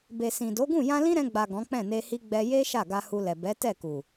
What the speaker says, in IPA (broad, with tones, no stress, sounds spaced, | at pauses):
b e˨ s ĩ˨ d o˨˦ ɡ ũ˦˨ j ã˧ l ĩ˦ ɾ ɛ̃˧ ɡ͡b a˨ ɡ ɔ̃˨˦ k͡p ɛ̃˦˨ n e˧ h i˦ ɡ͡b ɛ˧ j e˦ ʃ a˦˨ ɡ a˧ h u˧ l ɛ˨ b ɛ˨˦ t ɛ˦˨ k u˨